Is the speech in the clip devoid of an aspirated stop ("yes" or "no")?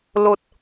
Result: yes